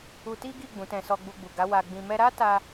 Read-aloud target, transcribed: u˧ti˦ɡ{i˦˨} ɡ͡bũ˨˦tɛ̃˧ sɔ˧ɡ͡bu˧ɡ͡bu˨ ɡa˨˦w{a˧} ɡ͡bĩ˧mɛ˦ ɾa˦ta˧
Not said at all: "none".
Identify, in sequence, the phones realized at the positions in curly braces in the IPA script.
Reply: i˦˨, a˧

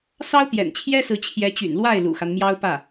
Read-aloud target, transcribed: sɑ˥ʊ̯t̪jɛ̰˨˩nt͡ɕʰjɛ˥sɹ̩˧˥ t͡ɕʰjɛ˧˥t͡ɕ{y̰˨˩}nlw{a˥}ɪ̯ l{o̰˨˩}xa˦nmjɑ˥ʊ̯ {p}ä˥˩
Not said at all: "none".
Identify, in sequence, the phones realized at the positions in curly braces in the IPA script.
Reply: y̰˨˩, a˥˩, ṵ˨˩, p

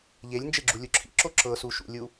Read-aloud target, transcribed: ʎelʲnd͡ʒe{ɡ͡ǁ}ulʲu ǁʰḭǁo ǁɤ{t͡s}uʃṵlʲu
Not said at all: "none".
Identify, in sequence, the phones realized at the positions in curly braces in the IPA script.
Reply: ɡ͡ǁ, s

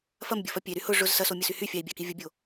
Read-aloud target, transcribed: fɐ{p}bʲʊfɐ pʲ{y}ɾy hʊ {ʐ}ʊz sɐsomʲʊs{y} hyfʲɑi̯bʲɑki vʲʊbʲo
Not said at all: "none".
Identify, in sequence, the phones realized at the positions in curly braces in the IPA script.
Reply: m, e, ʐ, y

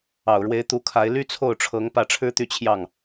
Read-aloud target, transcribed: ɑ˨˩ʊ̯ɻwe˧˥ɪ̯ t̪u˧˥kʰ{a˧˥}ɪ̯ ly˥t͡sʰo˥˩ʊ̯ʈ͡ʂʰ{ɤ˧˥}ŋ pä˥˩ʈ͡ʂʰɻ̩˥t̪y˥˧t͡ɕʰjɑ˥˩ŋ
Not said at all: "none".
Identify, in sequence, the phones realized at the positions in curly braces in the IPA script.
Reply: a˧˥, ɤ˧˥

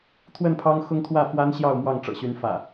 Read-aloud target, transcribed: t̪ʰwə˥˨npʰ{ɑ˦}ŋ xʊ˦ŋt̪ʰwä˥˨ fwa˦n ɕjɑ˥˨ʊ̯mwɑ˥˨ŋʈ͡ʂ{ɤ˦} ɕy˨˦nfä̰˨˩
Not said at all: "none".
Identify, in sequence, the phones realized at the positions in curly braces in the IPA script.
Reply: ɑ˦, ɤ̰˨˩

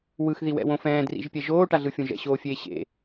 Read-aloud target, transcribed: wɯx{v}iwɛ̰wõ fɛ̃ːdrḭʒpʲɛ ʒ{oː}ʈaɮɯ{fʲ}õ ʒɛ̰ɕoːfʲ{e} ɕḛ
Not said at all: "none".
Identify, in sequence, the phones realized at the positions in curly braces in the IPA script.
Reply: ð, oː, fʲ, eː

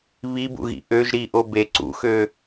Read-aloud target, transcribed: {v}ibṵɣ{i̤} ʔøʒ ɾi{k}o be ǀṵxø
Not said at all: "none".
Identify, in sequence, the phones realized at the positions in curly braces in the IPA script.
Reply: β, ḭ, ʔ

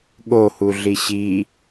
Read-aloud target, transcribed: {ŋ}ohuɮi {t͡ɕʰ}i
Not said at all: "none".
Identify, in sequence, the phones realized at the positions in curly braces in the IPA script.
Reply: ɠ, ɕ

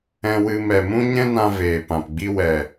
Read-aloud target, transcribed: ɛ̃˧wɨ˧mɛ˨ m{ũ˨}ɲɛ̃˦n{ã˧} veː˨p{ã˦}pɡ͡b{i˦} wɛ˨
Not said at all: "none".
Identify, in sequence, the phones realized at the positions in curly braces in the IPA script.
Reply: ũ˦, ã˧, ã˨, i˦

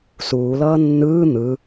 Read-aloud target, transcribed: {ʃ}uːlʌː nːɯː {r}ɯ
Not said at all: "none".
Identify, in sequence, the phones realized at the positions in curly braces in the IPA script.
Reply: s, n̪

